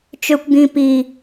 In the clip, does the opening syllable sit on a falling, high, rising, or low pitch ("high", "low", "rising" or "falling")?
low